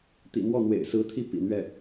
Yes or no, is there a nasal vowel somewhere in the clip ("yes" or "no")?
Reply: no